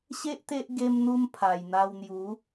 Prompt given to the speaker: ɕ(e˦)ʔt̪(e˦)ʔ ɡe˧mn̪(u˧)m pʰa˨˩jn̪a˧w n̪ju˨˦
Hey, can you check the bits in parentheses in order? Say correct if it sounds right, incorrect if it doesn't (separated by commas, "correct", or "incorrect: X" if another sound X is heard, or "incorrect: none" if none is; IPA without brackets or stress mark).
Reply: correct, correct, correct